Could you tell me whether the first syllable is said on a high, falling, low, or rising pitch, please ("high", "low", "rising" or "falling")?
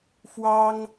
high